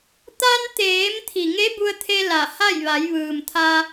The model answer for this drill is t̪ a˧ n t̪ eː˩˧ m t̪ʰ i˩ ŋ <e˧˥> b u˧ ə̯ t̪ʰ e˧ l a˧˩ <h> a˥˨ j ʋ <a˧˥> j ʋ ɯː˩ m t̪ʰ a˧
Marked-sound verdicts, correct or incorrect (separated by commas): correct, correct, incorrect